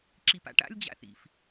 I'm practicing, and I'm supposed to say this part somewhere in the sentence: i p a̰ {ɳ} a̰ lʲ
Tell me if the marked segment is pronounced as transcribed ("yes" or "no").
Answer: no